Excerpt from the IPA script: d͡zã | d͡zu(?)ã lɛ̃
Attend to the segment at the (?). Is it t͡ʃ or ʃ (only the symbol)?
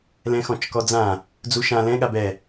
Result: ʃ